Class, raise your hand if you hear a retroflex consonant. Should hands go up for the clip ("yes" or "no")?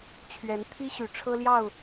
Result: yes